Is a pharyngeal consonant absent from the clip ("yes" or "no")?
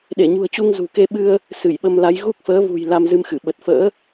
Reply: yes